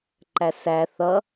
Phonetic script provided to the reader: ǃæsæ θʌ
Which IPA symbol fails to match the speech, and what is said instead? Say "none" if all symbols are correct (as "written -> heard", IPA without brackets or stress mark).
none